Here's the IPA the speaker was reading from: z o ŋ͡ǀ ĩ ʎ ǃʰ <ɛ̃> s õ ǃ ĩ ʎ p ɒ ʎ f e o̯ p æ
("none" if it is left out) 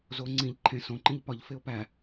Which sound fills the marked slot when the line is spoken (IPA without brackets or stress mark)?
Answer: ẽ